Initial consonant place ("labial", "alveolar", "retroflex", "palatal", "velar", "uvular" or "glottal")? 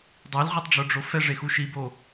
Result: alveolar